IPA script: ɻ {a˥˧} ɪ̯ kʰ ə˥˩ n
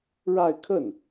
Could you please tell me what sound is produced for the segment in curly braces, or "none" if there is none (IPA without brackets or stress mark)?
a˥˧